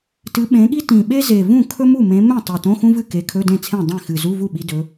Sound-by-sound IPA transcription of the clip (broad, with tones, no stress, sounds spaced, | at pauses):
t ɨ˨˦ ɓ ẽ˨˦ ɠ i˥ t ĩ˨˩ ɓ e˥ z e˨˩ v ũ˥˩ kʰ ɵ˥ m u˥˩ m ẽ˨˦ m ẽ˥˩ tˤ e˨˩ t õ˧˥˧ x ũ˥ v ɨ˥˩ k e˨˦ kʰ ɵ˧˥˧ d ẽ˥˩ t͡sʰ ẽ˥˩ dˤ ẽ˥˩ x ɨ˨˩ z u˧˥˧ v u˥˩ ɓ i˨˦ d ɵ˨˦